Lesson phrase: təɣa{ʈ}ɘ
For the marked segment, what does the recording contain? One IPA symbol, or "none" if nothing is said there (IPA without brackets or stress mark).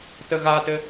t